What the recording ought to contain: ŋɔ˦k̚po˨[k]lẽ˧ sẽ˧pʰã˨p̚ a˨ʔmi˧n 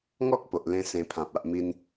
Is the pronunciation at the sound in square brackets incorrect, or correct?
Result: incorrect: ʔ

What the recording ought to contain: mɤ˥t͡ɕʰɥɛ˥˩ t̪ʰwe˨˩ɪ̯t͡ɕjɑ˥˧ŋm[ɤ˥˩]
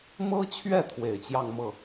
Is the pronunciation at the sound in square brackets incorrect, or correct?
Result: correct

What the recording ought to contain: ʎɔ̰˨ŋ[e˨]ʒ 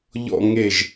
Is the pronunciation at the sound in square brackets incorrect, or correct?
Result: correct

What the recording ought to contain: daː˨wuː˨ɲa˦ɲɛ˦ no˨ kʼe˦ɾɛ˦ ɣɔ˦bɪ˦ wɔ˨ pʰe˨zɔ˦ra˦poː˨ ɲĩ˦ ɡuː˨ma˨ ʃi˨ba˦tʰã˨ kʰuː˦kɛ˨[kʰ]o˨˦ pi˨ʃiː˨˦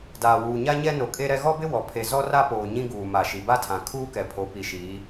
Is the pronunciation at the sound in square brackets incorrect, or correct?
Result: incorrect: pʰ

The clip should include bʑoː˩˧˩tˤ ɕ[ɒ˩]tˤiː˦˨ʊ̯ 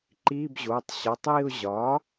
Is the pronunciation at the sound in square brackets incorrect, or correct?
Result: incorrect: ɒ˩˧˩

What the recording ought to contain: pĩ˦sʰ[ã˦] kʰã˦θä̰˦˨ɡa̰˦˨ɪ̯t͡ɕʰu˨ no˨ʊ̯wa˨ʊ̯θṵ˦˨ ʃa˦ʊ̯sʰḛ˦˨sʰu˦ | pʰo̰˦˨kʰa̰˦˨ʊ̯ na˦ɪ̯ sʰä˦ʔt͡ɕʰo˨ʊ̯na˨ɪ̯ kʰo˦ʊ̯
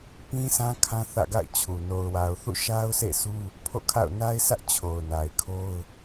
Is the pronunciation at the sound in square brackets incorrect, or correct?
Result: correct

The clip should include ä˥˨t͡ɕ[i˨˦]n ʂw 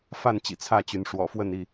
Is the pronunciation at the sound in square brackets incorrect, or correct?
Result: incorrect: y˨˦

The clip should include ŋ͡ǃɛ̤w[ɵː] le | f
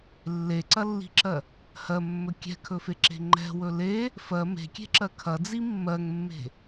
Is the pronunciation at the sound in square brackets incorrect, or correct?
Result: incorrect: ɵ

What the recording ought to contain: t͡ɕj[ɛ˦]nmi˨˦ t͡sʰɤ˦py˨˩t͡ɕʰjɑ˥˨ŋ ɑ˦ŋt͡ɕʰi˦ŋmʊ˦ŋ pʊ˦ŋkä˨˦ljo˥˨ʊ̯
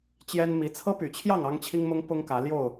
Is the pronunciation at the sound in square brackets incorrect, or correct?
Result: correct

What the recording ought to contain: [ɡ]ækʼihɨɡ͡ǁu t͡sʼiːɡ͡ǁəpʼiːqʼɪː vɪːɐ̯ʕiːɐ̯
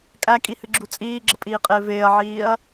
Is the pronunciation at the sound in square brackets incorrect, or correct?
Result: incorrect: kʼ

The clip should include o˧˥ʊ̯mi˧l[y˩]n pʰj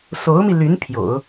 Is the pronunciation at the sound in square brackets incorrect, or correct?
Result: incorrect: y˧˥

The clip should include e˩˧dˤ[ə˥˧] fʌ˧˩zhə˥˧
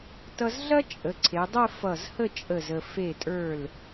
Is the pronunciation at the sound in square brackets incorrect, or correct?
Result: correct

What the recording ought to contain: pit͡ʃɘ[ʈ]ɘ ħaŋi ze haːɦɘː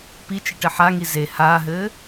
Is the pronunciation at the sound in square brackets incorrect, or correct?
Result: correct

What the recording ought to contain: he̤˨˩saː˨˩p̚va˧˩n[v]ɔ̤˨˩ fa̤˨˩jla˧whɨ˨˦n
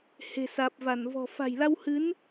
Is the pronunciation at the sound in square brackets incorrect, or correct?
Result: correct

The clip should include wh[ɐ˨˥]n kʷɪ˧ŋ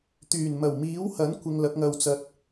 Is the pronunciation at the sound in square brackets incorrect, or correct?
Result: correct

